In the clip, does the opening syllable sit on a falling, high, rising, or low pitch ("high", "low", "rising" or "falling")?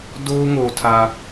high